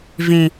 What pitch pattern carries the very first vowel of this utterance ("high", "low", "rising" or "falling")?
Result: low